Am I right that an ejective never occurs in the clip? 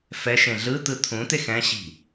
yes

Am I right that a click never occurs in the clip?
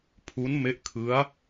yes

